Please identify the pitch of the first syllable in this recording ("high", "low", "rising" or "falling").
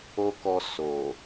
high